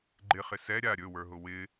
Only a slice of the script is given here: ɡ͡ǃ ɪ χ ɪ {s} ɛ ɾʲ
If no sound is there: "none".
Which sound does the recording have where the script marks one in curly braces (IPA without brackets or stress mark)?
s